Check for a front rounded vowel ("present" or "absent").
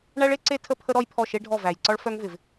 present